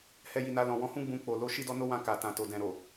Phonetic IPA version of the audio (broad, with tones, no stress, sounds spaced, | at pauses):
h ɛ˧ j i˨ n a˧ l ɔ̃˨ w ɔ̃˨˦ h ũ˦ ɡ͡b ũ˧ k͡p o˨ l o˧ ʃ i˦ d ɔ˦ n o˦ w ã˧ k a˨ t ã˨ t o˨ d ɛ̃˨ ɾ o˨